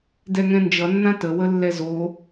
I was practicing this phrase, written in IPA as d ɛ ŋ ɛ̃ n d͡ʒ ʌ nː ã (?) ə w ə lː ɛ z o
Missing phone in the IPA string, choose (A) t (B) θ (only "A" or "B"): A